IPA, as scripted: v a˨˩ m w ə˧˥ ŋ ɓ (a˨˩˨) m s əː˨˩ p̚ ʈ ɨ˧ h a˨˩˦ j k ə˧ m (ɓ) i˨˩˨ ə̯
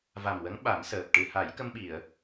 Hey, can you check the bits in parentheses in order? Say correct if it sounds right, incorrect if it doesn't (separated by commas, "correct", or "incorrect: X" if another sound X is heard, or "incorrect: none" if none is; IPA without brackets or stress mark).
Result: incorrect: a˨˩˦, correct